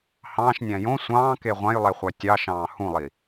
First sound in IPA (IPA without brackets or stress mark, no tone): h